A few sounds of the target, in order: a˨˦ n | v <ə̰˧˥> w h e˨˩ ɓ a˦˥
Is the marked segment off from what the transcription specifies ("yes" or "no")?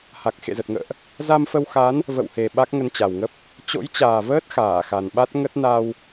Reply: yes